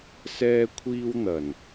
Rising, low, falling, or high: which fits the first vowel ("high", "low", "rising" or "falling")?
high